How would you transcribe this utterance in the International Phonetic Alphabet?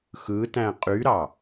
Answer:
xɯtæ̃ qʼyɾɑ

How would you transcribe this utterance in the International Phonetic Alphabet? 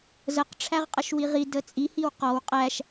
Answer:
zəq ʈ͡ʂʰæʁqʼəʃwiʁi dət͡sʼi hiwqɔw qʼæʃ

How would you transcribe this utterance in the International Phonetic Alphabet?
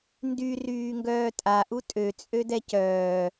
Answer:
ndy ryːŋɡœːtʼa ʔutʼø t͡sʼødɛcœː

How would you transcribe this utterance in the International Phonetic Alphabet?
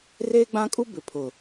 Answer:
reː˦ɡ͡bã˦kʼu˦ bɪ˨pʰʊ˨

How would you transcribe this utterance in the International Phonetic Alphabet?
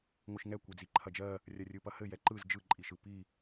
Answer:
ŋʷɯʃŋɛ kʷed͡ziǃʰɐd͡ʒɜ | rʲɐrʲɯpɐhɘ jɛǃɯz d͡ʒɯǃʼiʃɯ pi

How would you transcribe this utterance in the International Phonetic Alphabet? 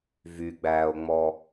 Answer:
vyɡ͡bæːo̯ŋ͡mɔ

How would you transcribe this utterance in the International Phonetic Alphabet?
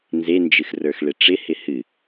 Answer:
nzend͡ʒɨxrə˞x ɭɪʈ͡ʂɪhɪ hɨ

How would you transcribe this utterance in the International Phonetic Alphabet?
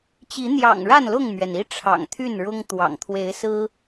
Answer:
t͡ɕi˨˦n̪jɑ̰˨˩ŋ ɻa˥˨nlʊ˥˨ŋmɥɛ˩ni˦ ʈ͡ʂʰɑ̰˨˩ŋt̪ʰy˥˨nɻʊ˦ŋt̪wɑ̰˨˩ŋ t̪ʰwe˨˦ɪ̯sɹ̩˦

